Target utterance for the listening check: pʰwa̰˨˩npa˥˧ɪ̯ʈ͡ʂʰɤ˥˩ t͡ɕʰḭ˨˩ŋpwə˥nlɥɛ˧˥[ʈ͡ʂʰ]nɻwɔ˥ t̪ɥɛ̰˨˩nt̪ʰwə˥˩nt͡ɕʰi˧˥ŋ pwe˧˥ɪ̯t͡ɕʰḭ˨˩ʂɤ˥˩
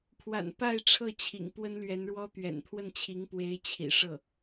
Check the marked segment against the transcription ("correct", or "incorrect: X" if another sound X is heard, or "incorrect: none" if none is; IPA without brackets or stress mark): incorrect: none